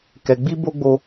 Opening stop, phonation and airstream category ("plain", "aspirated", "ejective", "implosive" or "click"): plain